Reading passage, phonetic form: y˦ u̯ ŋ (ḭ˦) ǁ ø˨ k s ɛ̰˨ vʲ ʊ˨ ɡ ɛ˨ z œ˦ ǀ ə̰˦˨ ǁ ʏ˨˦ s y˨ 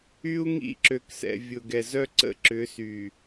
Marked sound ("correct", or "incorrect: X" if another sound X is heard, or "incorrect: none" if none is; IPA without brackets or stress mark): correct